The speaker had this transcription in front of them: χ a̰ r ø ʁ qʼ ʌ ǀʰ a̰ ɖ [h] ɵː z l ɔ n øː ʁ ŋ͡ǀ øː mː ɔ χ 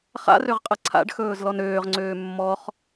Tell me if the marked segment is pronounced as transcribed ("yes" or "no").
no